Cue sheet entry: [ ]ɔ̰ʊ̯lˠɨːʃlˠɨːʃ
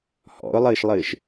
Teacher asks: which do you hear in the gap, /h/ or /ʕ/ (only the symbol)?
h